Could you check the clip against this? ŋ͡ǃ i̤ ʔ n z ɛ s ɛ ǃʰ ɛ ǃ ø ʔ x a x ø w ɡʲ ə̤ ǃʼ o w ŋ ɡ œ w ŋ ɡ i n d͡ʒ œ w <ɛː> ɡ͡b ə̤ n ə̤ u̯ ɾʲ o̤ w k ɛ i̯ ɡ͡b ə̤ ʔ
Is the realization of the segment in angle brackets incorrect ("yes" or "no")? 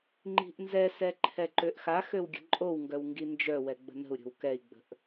yes